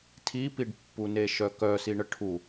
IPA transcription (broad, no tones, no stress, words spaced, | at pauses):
tʰipiɖpːune ʃœkœsiɳə ʈʰu